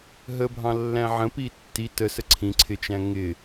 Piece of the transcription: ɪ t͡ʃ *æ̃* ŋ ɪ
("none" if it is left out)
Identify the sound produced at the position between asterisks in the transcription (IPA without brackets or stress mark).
æ̃